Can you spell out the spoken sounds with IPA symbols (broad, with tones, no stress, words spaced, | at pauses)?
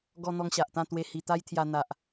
ɡɔ˧ n̪ɔ˧ŋɕa˨ʔt̪ã˥˧t̪we˧ hi˧t̪a˦jt̪ʰja˧ n̪a˨ʔ